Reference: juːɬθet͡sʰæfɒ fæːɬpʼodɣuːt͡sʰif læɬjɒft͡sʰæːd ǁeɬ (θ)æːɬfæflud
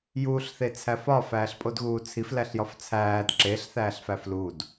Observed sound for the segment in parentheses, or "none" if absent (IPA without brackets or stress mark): θ